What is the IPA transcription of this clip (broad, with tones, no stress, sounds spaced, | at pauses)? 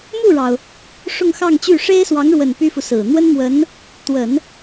m u˥˩ ɻ ɑ˩ ʊ̯ | ʂ ʊ˥˧ ŋ x ɑ˥˧ ŋ t͡ɕ y˥˩ ʂ e˥ ɪ̯ s w ɑ˧˥ ŋ ɻ w ə˨˩ n p y˥ f u˨ s ɹ̩˨˩ n̪ w ə˥ n m w ə˧˥ n | t̪ w ə˨˩˦ n